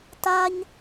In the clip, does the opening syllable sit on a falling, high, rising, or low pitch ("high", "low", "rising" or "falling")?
high